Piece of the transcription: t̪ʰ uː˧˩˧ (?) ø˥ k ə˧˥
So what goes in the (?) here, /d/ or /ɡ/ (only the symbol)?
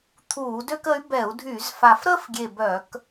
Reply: d